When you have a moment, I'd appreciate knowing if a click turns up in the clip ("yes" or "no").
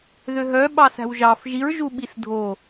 no